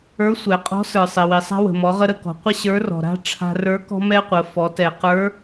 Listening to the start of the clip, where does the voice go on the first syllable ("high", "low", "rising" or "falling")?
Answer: rising